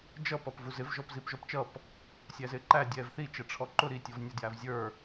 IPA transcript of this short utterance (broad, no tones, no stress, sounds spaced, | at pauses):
d͡ʒ ʌ p ʌ p v u z ɪ v ʒ ɔ p z i p ʒ ɔ p t͡ʃ ʌ p | sʲ æ z ɪː ǃ æ dʲ ɛː v θ i t͡ʃ ɛ ʈ͡ʂʰ ɔ ǃ ʊ ɾ i tʲ ɔ v nʲ ə d j æ v zʲ ə˞